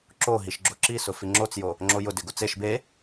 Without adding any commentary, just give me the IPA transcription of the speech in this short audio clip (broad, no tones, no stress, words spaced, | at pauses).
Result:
ǁo ɦiʃɡ͡ǁoǁisʊ fiŋ͡ǁot͡sjo | ŋ͡ǁojʊdɪ ɡʊt͡seʃ be